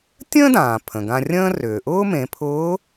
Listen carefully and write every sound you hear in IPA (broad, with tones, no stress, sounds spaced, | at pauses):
tʲ ə̃ː˥ d ãː˩ pʰ ə̃˩ ɡ ã˧ rʲ ə̃ː˥ r ʏː˩ ʔ ʊː˥ m ẽ˩˧ pʰ ʊː˧˥